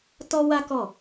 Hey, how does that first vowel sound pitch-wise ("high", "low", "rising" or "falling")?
high